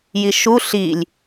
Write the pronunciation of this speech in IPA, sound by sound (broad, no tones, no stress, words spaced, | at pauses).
jiʃu ɬilʲ